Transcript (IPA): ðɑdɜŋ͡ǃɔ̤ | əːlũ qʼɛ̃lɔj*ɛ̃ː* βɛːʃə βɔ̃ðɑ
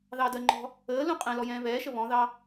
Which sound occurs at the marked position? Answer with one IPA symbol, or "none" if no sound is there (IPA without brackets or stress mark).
ɛ̃ː